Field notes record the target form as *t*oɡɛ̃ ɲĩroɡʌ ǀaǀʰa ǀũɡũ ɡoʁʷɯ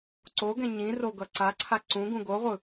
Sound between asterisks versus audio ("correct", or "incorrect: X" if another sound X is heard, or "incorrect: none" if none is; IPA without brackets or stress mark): incorrect: ǀ